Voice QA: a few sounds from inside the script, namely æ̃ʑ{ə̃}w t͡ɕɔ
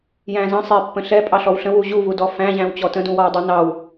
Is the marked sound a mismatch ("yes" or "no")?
yes